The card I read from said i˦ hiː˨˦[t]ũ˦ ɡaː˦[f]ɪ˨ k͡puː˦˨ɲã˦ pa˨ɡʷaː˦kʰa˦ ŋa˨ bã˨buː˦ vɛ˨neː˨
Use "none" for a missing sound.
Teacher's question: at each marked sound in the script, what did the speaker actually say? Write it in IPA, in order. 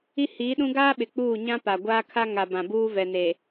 ɗ, ɓ

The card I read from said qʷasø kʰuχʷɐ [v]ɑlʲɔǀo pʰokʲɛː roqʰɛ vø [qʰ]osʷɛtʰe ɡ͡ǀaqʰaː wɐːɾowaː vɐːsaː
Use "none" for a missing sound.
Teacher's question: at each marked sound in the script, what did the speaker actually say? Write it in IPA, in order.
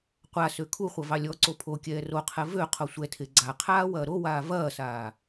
v, qʰ

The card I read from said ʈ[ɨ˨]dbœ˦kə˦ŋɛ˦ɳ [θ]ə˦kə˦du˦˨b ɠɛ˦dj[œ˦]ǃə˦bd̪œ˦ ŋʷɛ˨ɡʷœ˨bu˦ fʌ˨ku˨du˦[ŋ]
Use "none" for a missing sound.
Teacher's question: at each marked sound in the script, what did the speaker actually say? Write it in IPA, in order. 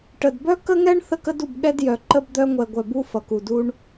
ə˨, θ, œ˨, ɳ

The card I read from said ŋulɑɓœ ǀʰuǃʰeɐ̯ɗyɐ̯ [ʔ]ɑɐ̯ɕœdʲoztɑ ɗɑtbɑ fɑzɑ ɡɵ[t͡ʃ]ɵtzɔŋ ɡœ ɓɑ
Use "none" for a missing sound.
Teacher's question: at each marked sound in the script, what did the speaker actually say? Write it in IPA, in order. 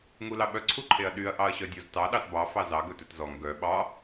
ʔ, t

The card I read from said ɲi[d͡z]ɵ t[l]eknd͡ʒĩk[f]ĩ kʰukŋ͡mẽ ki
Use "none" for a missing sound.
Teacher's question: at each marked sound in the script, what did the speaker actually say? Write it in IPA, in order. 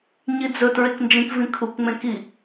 d͡z, ɹ, v

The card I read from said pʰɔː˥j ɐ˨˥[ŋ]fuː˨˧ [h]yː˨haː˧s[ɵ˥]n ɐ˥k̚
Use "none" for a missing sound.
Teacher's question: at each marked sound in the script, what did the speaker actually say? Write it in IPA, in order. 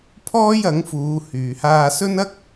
ŋ, h, ɵ˥

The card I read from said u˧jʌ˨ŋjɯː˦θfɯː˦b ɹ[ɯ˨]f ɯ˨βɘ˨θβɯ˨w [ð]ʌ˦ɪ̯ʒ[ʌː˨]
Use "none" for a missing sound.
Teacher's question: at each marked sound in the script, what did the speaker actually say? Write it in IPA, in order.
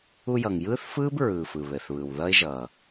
ɯː˨, ð, ʌː˨

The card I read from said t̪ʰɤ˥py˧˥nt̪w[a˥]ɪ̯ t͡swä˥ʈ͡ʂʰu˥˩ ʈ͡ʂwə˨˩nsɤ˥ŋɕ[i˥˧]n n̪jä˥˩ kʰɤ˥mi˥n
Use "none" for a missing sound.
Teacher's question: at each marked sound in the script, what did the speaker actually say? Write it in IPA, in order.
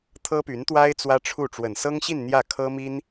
a˥, i˥˧

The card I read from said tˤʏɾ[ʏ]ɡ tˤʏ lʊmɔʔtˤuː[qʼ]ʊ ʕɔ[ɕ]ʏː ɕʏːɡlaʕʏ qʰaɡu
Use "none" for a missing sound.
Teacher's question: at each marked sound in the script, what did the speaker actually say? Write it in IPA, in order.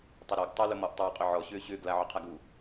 ɛ, qʼ, ɕ

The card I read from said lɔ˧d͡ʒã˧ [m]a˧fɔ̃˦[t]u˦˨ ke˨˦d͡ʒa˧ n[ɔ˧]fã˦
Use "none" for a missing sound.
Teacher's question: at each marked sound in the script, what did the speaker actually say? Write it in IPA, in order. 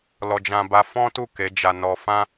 b, t, ɔ˧

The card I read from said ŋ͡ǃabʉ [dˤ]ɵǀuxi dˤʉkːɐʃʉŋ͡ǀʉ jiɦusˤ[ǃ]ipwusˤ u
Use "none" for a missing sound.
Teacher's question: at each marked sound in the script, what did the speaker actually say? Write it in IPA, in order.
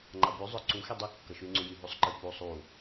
zˤ, ǃ

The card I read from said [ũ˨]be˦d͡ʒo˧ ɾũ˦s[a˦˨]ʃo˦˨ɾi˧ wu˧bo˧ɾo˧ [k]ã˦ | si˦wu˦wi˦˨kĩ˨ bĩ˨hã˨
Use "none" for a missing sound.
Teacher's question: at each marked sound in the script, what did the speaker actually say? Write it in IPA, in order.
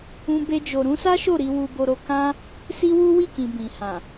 ũ˦, a˦, k

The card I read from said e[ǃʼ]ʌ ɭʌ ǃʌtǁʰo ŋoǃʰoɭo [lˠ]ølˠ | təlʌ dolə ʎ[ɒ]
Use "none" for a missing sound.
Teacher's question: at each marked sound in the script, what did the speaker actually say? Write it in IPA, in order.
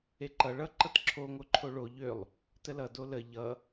ǃ, ʎ, ʌ

